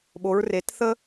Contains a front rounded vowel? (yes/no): no